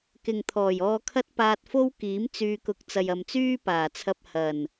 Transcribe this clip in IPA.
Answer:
k ɪ˨ ŋ t̪ʰ ɔː˨˩ j ɔː˧ kʰ ɐ˥ t̚ p aː˧ t̚ f o˥ w k iː˨˥ m t͡s yː˧ k ʊ˧ k̚ t͡s ɐ˨ j ɐ˨ m t͡s yː˥ p aː˨˩ t͡sʰ ɐ˧ p̚ h ɐ˨˩ n

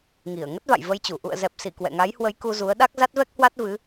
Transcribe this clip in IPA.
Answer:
ŋ i˧˩ ə̯ ŋ ə˦˥ t̚ v a̰˧˨ j v ə˧ j t͡ɕ u˧˩ ʔ ṵ˧˨ ə̯ z ɛ˨˩ p̚ s i˧˩ k w ɛ̰˧˨ ŋ a˨˦ j h w ə˨˦ j k u˧ z u˨˦ ə̯ ɗ a˦˥ k̚ z a˦˥ t̚ v ɛ˦˥ k̚ h w a˦˥ t̚ v ɨ˨˦

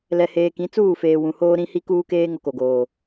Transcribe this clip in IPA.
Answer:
l ɛ˨ h eː˨ k ĩ˨˦ t͡s uː˦˨ f eː˨ w ũ˨ h oː˦ ɾ ĩ˦ h i˦ k uː˦ k eː˦ ŋ o˦ k o˨ ɡ oː˨

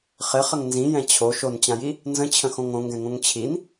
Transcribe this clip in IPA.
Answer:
χ ɪ χ ə ŋ n z ĩ j ɛ̃ t͡ɕʰ o ʃ o n t͡ɕ ã j i | n z ə̃ t͡ɕʰ ə̃ x õ ŋ õ ŋ ɡ ɛ̃ ŋ õ ŋ t͡ɕʰ i n

